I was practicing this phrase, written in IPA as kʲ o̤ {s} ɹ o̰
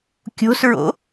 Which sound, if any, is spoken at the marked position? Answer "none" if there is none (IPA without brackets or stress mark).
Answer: s